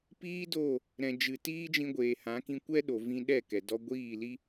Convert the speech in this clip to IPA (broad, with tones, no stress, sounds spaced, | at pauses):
p iː˦ d o˦˨ | ɾ ɛ̃˨ d͡ʒ ɨ˨ t iː˦ d͡ʒ ĩ˧ ɡʷ eː˨ h ã˨˦ k ĩ˧ kʷ ɛ˦ ɗ o˨ v ĩ˧ ɗ ɛ˦˨ k ɛ˨ d ɔ˧ ɡʷ iː˦˨ l i˦